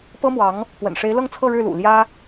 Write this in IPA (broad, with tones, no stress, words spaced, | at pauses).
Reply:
pɤ˥mwɑ˧˥ŋ | pwə̰˨˩nʂe˧˥ɪ̯ lɤ˥˧ŋt͡sʰɤ˥˧ ɻɻ̩˥˩lṵ˨˩ ljä˥